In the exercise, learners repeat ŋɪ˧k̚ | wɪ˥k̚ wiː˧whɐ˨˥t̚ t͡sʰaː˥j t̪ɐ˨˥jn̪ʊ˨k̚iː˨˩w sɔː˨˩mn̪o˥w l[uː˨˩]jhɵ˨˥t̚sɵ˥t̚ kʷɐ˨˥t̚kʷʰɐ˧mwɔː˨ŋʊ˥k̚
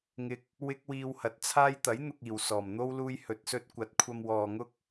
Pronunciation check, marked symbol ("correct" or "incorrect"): incorrect